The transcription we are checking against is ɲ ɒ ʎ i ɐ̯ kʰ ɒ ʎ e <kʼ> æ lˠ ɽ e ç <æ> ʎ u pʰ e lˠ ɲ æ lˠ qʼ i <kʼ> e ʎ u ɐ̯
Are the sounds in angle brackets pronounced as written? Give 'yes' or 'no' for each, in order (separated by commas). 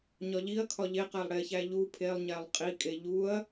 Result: no, yes, yes